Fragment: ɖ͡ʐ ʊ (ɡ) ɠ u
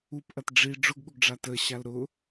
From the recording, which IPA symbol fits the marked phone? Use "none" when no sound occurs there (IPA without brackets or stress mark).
ɡ